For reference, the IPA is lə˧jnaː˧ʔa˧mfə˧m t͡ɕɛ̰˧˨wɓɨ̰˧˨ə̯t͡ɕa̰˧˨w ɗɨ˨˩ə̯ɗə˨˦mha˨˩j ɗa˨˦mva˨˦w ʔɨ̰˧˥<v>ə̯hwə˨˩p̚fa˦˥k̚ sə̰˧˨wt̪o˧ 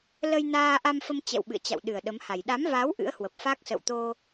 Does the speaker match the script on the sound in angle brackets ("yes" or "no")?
no